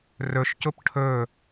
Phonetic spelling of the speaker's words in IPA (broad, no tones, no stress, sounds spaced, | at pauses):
r ɵ ʃ c ʊ p ʈʰ ɵ